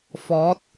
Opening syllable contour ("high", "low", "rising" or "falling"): rising